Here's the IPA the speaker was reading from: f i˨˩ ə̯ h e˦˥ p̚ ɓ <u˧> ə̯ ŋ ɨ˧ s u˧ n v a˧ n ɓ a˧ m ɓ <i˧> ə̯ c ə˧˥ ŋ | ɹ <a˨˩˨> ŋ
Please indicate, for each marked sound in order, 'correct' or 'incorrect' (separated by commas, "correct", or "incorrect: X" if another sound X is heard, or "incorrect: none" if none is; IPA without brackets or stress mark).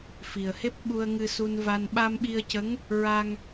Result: correct, correct, incorrect: a˧